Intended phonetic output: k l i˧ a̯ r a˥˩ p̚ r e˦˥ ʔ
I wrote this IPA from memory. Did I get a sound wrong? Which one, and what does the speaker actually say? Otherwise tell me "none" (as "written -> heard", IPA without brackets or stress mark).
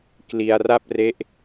none